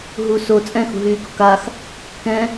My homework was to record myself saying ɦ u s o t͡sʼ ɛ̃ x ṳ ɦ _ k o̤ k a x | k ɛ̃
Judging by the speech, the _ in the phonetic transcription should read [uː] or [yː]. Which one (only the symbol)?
yː